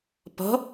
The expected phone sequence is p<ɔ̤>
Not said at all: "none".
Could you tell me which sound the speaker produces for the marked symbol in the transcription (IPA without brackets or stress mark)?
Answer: ɔ̤